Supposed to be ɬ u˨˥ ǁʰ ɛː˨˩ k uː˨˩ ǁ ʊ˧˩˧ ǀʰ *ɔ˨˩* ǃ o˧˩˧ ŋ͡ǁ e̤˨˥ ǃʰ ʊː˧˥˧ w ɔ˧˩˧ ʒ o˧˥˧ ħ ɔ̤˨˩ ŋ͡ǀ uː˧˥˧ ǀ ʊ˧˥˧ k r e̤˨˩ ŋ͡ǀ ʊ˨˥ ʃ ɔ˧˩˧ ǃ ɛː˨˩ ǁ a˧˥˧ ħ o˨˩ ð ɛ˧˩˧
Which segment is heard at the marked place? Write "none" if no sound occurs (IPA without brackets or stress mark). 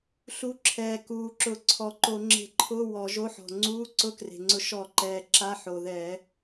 ɔ˨˩